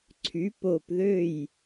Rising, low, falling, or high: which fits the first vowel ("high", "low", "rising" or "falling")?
rising